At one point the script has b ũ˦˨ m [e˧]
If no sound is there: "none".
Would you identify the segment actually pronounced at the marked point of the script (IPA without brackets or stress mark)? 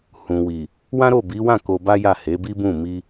i˧